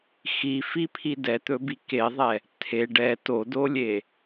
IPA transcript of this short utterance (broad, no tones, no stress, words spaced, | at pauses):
xifipʰi dɛt̪ɵbi keðˤɛ | tʰe ɖɛ todolʲe